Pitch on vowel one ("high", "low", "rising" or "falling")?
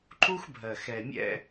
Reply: high